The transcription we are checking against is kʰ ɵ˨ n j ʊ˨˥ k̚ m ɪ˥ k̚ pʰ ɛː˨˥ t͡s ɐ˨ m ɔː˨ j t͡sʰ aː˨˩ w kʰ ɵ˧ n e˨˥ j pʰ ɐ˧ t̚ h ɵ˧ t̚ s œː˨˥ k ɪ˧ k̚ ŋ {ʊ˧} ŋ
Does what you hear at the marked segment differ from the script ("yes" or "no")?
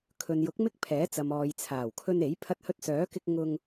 no